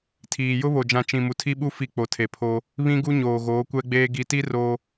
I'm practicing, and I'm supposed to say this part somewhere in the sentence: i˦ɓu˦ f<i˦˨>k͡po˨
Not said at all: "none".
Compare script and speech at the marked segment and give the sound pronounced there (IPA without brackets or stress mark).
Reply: i˦˨